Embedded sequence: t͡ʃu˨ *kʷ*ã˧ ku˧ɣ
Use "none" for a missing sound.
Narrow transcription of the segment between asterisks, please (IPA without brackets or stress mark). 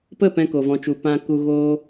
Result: p